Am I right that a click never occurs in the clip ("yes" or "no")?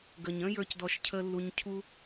yes